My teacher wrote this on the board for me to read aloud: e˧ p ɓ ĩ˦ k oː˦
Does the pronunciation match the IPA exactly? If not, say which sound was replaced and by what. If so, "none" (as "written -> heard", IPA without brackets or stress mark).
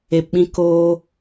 none